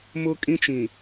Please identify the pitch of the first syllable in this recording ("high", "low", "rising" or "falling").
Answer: high